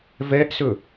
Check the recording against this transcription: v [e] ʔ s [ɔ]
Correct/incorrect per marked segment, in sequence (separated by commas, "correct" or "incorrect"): incorrect, incorrect